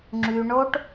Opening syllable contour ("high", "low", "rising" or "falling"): low